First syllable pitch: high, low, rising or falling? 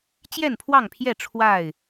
falling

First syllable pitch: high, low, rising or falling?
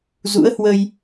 rising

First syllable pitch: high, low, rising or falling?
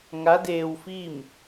rising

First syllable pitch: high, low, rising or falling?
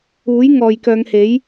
rising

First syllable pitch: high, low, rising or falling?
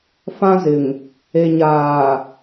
high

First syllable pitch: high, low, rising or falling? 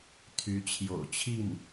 rising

